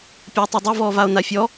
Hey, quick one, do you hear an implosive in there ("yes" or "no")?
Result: no